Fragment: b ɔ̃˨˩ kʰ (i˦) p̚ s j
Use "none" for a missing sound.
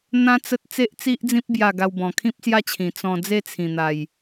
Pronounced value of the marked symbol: ĩ˦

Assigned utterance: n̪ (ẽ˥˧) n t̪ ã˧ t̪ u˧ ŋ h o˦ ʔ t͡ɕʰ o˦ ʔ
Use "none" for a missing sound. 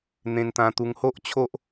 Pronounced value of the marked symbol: ẽ˧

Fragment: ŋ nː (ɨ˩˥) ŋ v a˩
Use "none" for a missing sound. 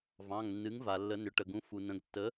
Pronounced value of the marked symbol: ɨ˩˥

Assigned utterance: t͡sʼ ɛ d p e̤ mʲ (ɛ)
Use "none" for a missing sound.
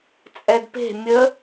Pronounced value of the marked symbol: ə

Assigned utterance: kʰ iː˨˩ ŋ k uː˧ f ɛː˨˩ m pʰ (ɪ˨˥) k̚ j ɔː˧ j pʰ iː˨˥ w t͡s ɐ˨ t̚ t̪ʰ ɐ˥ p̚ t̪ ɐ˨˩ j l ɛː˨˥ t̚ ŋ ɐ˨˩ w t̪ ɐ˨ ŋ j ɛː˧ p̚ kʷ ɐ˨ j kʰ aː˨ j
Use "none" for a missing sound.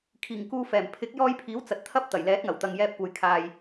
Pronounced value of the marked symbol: ɪ˨˥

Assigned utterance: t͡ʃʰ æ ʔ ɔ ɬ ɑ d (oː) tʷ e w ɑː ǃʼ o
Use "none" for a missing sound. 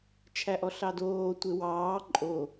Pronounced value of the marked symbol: oː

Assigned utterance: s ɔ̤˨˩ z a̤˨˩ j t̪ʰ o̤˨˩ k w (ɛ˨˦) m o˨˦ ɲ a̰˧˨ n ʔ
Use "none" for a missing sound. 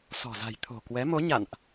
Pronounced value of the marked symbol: ɛ˨˦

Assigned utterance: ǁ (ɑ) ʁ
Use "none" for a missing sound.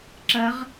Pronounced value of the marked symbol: ɐ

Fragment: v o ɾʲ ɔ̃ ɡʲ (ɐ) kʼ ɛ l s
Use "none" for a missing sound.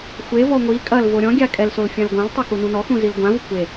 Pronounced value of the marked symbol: a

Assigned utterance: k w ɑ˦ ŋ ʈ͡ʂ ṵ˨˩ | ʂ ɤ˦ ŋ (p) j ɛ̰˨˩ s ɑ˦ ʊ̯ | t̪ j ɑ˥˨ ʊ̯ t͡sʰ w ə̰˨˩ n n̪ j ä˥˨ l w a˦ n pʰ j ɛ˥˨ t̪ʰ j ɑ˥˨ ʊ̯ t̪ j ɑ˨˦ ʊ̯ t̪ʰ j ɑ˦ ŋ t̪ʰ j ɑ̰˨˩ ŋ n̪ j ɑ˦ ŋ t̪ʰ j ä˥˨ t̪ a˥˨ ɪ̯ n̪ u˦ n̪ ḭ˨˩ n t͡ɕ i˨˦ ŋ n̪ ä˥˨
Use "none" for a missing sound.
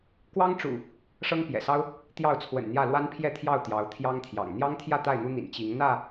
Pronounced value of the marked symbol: p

